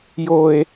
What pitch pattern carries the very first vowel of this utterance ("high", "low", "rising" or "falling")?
high